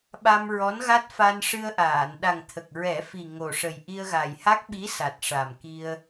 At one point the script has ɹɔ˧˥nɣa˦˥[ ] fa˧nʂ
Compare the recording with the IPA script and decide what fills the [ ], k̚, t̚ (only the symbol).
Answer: t̚